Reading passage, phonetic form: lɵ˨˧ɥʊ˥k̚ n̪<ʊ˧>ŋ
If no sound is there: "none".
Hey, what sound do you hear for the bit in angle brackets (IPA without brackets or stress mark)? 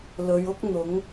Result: ʊ˨˥